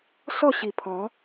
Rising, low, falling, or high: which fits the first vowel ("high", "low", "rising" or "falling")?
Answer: falling